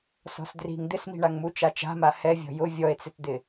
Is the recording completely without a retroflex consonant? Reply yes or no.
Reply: no